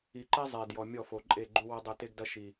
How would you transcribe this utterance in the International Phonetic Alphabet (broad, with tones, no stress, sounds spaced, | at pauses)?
i˨ ǃ ɛ˦ zˤ e˨ d j ɔ˨ mʲ ɔ˦˨ f o˨ ǃʼ e˦˨ ɡ͡ǃ u˦ w ɐ˦ dˤ ɘ˦˨ t e˦ ɡ d ɐ˦ ʃ i˨